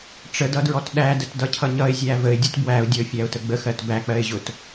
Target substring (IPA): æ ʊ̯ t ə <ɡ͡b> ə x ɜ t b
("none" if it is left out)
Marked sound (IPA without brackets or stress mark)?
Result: ɡ͡b